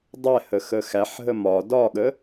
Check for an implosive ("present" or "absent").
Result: present